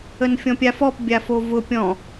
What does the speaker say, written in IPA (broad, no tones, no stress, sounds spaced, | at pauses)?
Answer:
ə n fʲ ɔ̃ pʲ a f ɔ p bʲ a f o v ʊ pʲ ɔ̃